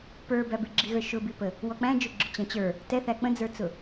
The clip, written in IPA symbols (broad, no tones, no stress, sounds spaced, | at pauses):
p ə˞ b æ b ɪ ɡ͡ǁ i ɣ ə˞ ʃ ʊ b i p ə | w ɔ k͡p æ̃ d͡ʒ ʊ ɡ͡ǁ ʊ t͡ɕ æ̃ t͡ɕ ə˞ | t ɛ θ æ k͡p ə̃ d͡z ə˞ t͡s ʊ